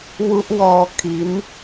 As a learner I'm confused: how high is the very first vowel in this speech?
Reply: high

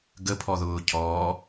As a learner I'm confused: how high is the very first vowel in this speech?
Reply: mid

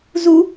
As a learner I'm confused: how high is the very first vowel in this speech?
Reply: high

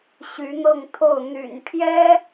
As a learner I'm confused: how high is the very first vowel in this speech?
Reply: high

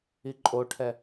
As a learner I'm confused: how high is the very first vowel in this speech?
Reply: high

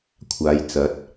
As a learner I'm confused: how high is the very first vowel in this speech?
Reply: low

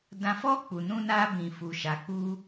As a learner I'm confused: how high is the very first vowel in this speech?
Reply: low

